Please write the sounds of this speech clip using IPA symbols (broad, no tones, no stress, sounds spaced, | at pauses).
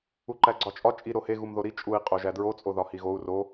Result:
u ǃ æ ɡ͡ǀ ɒ t͡ʃʼ ɒ t͡ʃʼ i ɾ o h e ɣ u m ð o ɾ i t͡ʃʼ u i̯ qʼ o ʒ æ d ɹ o t͡sʼ o ð ɒ h i ɣ o u̯ r o